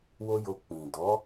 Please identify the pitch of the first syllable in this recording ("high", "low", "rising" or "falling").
high